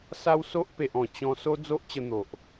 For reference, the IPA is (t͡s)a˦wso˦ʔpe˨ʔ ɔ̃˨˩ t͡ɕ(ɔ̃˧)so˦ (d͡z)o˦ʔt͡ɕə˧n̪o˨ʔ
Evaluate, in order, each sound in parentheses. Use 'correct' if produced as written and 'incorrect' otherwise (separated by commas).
incorrect, correct, correct